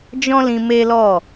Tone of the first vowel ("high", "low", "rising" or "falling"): high